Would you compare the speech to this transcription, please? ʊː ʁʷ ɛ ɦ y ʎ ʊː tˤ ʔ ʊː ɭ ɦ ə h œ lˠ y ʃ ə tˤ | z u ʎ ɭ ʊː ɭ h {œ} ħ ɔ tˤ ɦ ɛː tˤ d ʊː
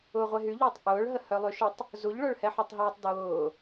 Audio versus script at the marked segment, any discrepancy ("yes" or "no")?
yes